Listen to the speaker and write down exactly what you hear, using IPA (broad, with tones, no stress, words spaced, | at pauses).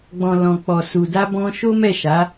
ɡ͡bɔ̃˨ lɔ̃˨ k͡pɔ˨su˨ da˧bɔ̃˧ ʃo˦mɛ˦˨ʃa˨˦